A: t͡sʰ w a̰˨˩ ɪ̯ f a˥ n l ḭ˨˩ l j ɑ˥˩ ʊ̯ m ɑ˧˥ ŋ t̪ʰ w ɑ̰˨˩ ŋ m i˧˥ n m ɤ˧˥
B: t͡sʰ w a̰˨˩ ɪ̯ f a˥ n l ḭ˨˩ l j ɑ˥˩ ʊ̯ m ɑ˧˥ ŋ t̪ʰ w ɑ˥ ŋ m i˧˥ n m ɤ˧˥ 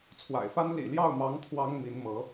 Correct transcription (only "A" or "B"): B